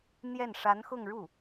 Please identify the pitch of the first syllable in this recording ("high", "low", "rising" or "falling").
falling